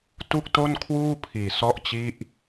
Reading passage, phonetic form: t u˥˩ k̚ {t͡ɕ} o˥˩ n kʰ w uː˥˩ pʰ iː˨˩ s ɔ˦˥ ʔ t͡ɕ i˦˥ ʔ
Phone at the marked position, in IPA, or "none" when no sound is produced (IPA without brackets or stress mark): t